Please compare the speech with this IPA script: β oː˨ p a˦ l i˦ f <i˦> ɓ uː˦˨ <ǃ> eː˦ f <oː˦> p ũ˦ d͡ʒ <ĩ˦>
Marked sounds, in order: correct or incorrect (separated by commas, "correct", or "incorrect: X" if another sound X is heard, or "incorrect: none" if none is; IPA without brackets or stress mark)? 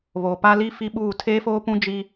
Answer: correct, incorrect: tʰ, correct, incorrect: i˦